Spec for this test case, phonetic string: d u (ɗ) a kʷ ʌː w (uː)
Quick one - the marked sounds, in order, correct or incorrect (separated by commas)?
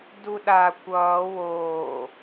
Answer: correct, incorrect